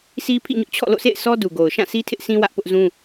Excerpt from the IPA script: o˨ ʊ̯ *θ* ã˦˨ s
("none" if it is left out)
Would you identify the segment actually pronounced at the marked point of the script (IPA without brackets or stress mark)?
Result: ʃ